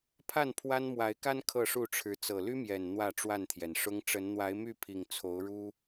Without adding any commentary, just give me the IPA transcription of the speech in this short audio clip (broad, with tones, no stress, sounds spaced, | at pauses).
pʰ a˥˨ n pʰ w a˦ n m w a˨˦ ɪ̯ k a˦ n kʰ ɤ˥˨ ʂ u˥˨ ʈ͡ʂʰ ɻ̩˨˦ t͡s ɤ˨˩ l y˦ m j ɛ˨˩ n n̪ w ä˥˨ ʈ͡ʂ w a˥˨ n t̪ʰ j ɛ˩ n ʂ ʊ˦ ŋ ʈ͡ʂ ə˨˦ n n̪ w a˨˦ ɪ̯ m y˥˨ pʰ i˨˩ ŋ t͡sʰ o˨˦ ʊ̯ ɻ u˦